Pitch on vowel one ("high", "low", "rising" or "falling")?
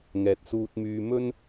low